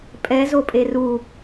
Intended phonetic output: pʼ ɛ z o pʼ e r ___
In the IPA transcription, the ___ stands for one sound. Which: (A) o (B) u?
B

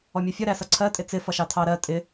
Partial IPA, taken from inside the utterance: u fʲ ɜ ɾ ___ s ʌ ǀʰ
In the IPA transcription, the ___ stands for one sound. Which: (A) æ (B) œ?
A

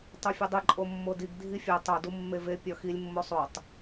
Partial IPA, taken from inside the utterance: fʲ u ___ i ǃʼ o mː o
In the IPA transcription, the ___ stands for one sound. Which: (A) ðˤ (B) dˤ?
B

